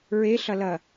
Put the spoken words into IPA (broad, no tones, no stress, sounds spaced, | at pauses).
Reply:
ɹ e ɬ ɐ l ɐ